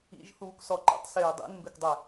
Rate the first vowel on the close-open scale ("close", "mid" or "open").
close